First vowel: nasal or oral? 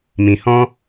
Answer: nasal